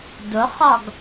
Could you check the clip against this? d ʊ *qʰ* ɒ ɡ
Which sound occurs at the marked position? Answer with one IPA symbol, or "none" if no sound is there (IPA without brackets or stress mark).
χ